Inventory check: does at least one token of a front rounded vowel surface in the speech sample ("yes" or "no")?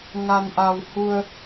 no